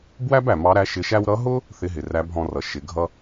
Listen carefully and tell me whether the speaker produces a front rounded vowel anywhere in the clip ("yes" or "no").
no